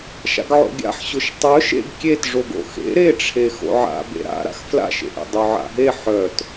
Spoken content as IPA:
ʃ a̰ ɡ ʕ o̰ ɡʲ a̰ ħ ɕ ʊ ʃ tˤ œ ʃ ḛ ɡ kʲ e t ʐ o ɡ o̰ x ḛ ɾ e ʈ͡ʂʰ e x o̰ ʕ a̰ b ḛ ɾ a̰ ɾ a̰ x f l a̰ ʃ ḛ ʔ ḛ dˤ o ʕ a̰ ɦ e ħ œ t

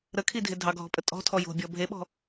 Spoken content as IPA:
ɾ ə kʰ i dʱ ɪ dʱ ɑ ɡʱ ɔ̤ pʼ ə tʼ ɔ̤ tʰ ɔ j o̤ bʲ ɔ bʱ e ɓ ɔ̤

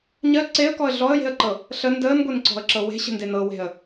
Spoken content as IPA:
ɲ ɜ ǀ e ə̯ k ɔ ə̯ ɮ ɔ ə̯ j e̤ ə̯ ǃ ɤ | ɬ ə n d əː n ɡʷ e n ǀ ɔ̤ ə̯ ǁ ɤ w e̤ ɕ ə̤ n d e n ɤ w e̤ ə̯

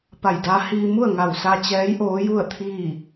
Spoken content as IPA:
p a˧˩ j d aː˧˥ h iː˧ m u˥˨ ə̯ ŋ a˧˩ w s a˧ t͡ɕ ɛː˧˥ j ʔ oː˧˥ j u˥˨ ə̯ t̪ʰ iː˥˨

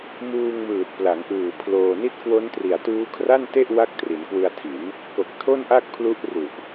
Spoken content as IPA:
m uː˧ ŋ m ɯː˨˩ t̚ p l a˩˦ ŋ ʔ ɯː˨˩ pʰ l oː˧ n i˦˥ t̚ k w o˦˥ n t r i˨˩ a̯ t uː˦˥ kʰ r a˥˩ n t e˥˩ ʔ w a˥˩ k̚ t r i˩˦ n k w ɯ˧ a̯ tʰ i˩˦ n | k o˨˩ k̚ tʰ o˥˩ n ʔ a˥˩ k̚ pʰ l u˦˥ ʔ r u˨˩ ʔ

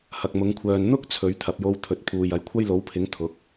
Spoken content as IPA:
h ɐ˨ k̚ m ʊ˨˧ ŋ kʷʰ œː˨ n n̪ ʊ˥ k̚ t͡sʰ ɵ˨˧ ɥ t̪ʰ ɐ˨ p̚ j o˧ w t̪ʰ ɵ˨ t̚ pʰ uː˨ j ɐ˨ j kʷʰ ɐ˥ j l o˨˥ w pʰ ɪ˨˥ ŋ t̪ʰ ʊ˨˥ k̚

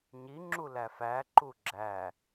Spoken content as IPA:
ɲ i ŋ͡ǁ u l æ f æ ǃ u ɡ͡ǁ æ

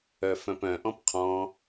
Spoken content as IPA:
œ f œ̃ p œ̃ ʔ ɔ̃ p qʰ ɔ̃

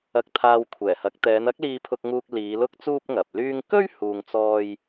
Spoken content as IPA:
ɐ˧ k̚ t̪ʰ aː˧ w kʷʰ ɛː˨˩ h ɐ˨˥ k̚ t̪ ɛː˨˧ n ɐ˥ k̚ l iː˧ pʰ ʊ˧ k̚ ŋ uː˧ k̚ l iː˨˧ l ʊ˥ k̚ t͡s uː˥ p̚ ŋ ɐ˨ p̚ l yː˧ ŋ k ɵ˥ ɥ h uː˧ ŋ t͡s ɔː˥ j

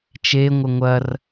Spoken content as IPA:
t͡ʃ e ŋʷ ɘ ŋʷ ɐ r

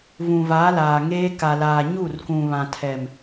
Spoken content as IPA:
v ũ˨ v a˨˦ l aː˨ ŋ eː˦ k a˨ l aː˨ ɲ u˦˨ r k ũ˨ β ã˨ tʰ ɛ˨ m

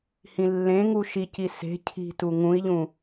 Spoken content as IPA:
h ĩ lː ẽ ŋ u ʃ i c i s e̤ cʰ i̤ t u ŋ ũ i̯ ʎ ũ

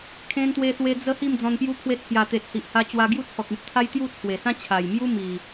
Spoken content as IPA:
kʰ ẽ˧ n t̪ w e˧ s w e˧ d͡z ə˧ h i˥˧ m d͡z ɔ̃˧ n p j u˧ kʰ w e˧ t͡sʰ j a˨˩ t̪ e˨ t̚ h i˨ ʔ h a˧ t͡ɕ w a˧ ɡ j u˦ t͡sʰ ɔ˨ k̚ ĩ˨ t̚ t̪ʰ a˦ j t̪ j u˥˧ t͡sʰ w e˨˩ s ã˦ t͡ɕʰ a˨˩ j m j u˦ m i˨˩

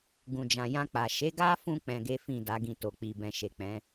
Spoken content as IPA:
ɡ ũ˨ d͡ʒ ã˨ j ã˧ k͡p a˨ ʃ e˨˦ ɡ a˦ f ũ˧ k͡p ɛ̃˧ ɡ e˦ f ĩ˦˨ d a˨˦ ɡ ĩ˦˨ t o˨ k͡p i˨ b ɛ̃˨ ʃ e˨ k͡p ɛ̃˨˦

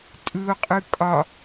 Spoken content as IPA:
tʼ ɯ o̯ qʼ ɯ kʼ ɒ

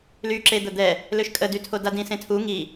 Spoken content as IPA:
l y ǁ e d̪ ə d̪ ɛ | l ø ʃ kʼ ə d y tʰ o d a d ĩ s ẽ tʰ u ŋ i

